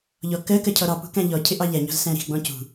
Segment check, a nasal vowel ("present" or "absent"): present